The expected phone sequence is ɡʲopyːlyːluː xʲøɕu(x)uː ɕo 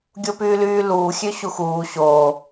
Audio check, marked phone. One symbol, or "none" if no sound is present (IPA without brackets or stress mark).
x